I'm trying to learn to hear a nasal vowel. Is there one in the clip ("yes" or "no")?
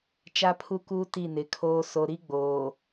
no